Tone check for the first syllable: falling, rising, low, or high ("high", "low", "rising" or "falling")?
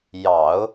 low